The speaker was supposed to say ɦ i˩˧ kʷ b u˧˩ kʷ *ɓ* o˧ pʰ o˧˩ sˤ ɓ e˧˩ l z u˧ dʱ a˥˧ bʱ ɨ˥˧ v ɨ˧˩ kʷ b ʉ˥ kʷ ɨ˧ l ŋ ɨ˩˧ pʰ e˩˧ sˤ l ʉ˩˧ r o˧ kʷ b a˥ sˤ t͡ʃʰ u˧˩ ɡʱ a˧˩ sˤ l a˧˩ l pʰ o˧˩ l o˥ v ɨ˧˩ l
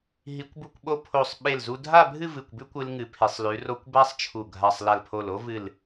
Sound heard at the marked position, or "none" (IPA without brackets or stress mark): ɓ